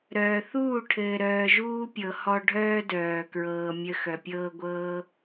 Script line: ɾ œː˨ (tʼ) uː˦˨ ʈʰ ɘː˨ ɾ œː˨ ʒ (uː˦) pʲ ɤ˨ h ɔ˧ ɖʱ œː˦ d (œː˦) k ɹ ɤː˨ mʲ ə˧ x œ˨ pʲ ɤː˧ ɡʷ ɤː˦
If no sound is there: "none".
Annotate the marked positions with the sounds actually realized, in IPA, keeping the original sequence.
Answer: θ, uː˦, œː˨

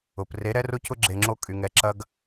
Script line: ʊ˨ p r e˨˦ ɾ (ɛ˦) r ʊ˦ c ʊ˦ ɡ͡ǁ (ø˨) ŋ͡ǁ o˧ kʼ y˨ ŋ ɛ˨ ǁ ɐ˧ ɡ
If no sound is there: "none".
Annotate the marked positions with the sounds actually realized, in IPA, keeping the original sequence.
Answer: ɛ˦, e˨

